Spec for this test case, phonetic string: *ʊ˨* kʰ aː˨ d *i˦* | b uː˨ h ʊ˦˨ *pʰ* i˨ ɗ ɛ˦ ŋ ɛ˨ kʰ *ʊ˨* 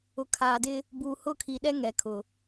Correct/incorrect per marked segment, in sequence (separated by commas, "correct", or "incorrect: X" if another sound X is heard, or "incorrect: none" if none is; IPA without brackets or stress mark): correct, incorrect: ɪ˦, incorrect: kʰ, correct